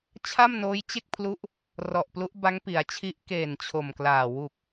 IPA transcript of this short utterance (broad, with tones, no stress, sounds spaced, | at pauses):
t͡ɕʰ a˥˩ m n oː˦˥ j t͡ɕ e˥˩ k̚ pʰ l u˦˥ ʔ | r ɔ˨˩ ʔ p l u˦˥ ʔ b a˦˥ ŋ p i˩˦ a̯ t͡ɕʰ i˦˥ ʔ k eː˨˩ n t͡ɕʰ o˨˩ m k l aː˨˩ w u˨˩ k̚